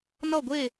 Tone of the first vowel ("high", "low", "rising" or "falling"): falling